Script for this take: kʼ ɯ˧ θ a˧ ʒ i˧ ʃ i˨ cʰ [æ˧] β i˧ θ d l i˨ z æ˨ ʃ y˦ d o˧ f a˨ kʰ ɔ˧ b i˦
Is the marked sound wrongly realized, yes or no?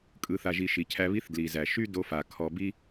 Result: no